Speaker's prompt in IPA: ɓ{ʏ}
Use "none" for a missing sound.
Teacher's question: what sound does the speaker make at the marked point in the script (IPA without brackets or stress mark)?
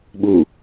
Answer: u